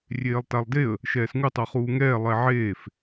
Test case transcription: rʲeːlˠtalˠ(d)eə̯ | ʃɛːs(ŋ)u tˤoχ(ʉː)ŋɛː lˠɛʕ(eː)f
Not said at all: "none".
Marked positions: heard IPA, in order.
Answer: d, ŋ, uː, eː

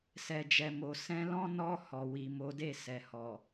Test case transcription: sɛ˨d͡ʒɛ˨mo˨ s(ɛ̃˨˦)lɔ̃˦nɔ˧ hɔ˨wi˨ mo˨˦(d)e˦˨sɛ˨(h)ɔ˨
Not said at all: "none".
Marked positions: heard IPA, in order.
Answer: ɛ̃˨˦, d, h

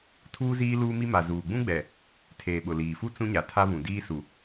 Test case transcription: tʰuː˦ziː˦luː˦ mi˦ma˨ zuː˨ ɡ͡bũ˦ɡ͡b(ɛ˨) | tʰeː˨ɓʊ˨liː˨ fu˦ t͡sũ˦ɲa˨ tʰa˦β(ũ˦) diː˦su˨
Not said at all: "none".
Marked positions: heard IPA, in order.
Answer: ɛ˨, ũ˨

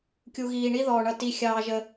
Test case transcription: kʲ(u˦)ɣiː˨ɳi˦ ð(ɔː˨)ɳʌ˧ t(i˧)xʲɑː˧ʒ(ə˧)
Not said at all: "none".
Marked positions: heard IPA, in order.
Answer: u˨, ɔː˨, i˧, ə˧

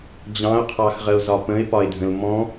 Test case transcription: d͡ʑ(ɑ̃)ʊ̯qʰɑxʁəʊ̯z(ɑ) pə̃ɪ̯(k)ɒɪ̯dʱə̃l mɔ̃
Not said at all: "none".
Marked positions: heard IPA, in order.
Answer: ɑ̃, ɒ, p

